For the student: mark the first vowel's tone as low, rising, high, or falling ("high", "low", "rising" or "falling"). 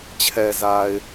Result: low